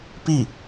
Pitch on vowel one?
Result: falling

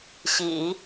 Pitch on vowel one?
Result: low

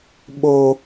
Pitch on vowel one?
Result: high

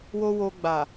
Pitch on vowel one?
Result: high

